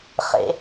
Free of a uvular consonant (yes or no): no